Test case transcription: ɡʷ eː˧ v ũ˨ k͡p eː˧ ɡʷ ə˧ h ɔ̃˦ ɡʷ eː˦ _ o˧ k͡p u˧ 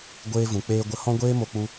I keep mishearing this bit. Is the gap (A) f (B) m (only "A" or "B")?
B